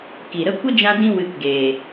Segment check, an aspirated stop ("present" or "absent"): absent